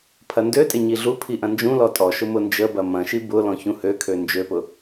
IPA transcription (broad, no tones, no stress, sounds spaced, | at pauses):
pʰ ɐ n d ø tʼ ɪ ɲ i ɮ u pʰ i ʔ ɐ̃ n d͡ʒ ũ l ɔ tʼ ɔ ʃ ʊ m ʊ n d͡ʒ ə b ɐ m ɐ̃ ʃ i b ʊ l ɔ̃ ç ũ h ø kʰ ø n d͡ʒ ø p ʊ